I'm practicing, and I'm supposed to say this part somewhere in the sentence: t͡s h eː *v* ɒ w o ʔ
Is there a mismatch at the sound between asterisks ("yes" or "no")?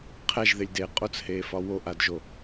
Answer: yes